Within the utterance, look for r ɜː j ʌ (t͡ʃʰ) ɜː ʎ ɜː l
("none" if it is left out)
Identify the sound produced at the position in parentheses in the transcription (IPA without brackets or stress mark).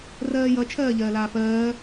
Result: t͡ʃʰ